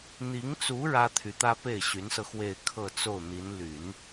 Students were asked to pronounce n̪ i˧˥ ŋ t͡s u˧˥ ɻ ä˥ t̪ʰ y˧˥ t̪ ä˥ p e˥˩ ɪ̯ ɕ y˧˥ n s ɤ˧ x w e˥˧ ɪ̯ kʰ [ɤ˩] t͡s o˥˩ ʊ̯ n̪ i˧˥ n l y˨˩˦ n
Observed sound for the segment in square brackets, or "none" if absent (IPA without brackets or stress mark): ɤ˥˧